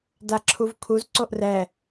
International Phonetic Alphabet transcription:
d a ǁʰ u v kʰ u z ǀ o ʔ r ɛ

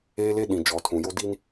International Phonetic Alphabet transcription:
eː˦ l e˦ ɗ ĩ˨ d͡ʒ ɔ˨ tʰ ũ˨ j o˦ d i˦ n

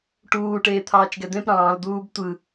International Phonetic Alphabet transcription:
ʈ uː ʈ eː t̪ʰ ɑː t͡ʃ ɡ ɛ d̪ ẽ p ɾ ɑ̃ː l d̪ uː b tʷ ɯ

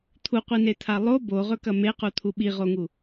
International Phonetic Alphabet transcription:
t̪ʰ u qʷ i n e t̪ʰ a lˠ o b o ʁ ɵ k ɐ m e q u t̪ʰ u ɓ i ʁ o ŋ u

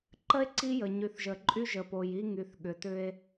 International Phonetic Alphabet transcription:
ǃ ə˦ e̯ ǀ i˦ j ə˨ ɲ y˨ θ ʒ ə˨ ǃʼ y˦ ʒ ə˨ p o˨ j i˦ ŋ y˨ θ ɠ ʏ˨ t ʏ˦ e̯

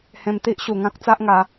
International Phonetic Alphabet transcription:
h ẽ˧ m t̪ i˦ ʔ ɕ u˨˩ ŋ ã˦ k̚ t͡s a˦ ʔ ŋ a˨˦

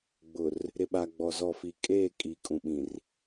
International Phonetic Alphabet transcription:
ɡ͡b ʊ˨ r | ɾ ɪ˨ ɓ a˨ ɡ͡b ɔ˨ z ɔ˨ f i˨ kʼ eː˦˨ kʼ iː˨ kʼ ũ˨ ɓ ĩ˨ r

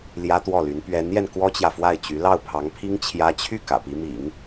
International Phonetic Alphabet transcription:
l j ä˥ t̪ w ɔ˥˩ l y˧˥ n p ɥ ɛ˧˥ n j ɛ˧ n k w ɔ˥ t͡ɕ j ä˨ f w a˥˩ ɪ̯ t͡ɕ y˧˥ l ɑ˥˩ ʊ̯ pʰ ɑ˧˥ ŋ pʰ i˥ ŋ t͡ɕʰ j ä˥ t͡ɕʰ y˥˩ k ä̰˨˩ p i˧˥ m ḭ˨˩˦ ŋ

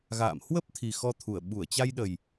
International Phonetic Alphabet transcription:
ɣ a̰ː˧˨ m h w ə˦˥ p̚ t̪ʰ i˨˩ x ɔ˧ t̪ʰ u˧˩ ə̯ ɓ u˧˩ ə̯ t͡ɕ a˧ j ɗ ə˨˩ j

